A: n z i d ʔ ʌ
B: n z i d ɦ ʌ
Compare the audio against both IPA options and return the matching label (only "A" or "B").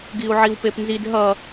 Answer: B